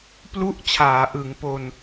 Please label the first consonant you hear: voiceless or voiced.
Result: voiceless